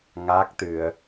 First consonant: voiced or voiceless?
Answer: voiced